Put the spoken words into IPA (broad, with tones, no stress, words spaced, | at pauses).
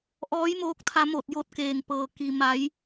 ʔɔː˧˥jmoː˧˥k̚t̪ʰa˧ mo˧˩t̚jo˧t̚keː˩ŋpɤː˩ ki˩ ma˩˧j